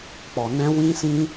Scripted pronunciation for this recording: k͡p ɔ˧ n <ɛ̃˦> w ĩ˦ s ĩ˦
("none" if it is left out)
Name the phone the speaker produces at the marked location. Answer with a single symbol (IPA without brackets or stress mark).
ɛ̃˦